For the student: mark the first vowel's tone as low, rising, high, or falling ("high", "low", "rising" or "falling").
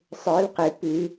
rising